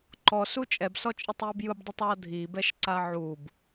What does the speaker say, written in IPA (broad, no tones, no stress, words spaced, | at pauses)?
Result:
ǃɔsu t͡ʃʼɛbsɔt͡ʃʼɯtˤjɯb jɯbdˤutˤwɔ dʱibɛʃǀa ʕub